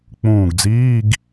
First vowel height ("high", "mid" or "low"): high